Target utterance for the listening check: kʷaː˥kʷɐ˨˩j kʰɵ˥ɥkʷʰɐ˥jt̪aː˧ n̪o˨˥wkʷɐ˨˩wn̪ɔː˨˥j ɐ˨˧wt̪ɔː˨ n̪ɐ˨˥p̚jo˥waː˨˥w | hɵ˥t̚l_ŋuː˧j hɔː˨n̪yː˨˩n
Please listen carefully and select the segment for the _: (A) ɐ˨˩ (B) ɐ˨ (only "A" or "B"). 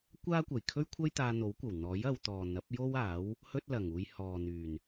A